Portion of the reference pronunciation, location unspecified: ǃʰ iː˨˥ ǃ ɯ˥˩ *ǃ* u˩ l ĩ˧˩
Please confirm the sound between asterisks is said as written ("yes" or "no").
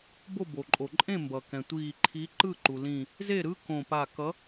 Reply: yes